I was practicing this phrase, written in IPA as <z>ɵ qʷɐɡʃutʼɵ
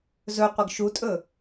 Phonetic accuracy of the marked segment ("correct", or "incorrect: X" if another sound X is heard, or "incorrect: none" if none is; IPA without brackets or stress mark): correct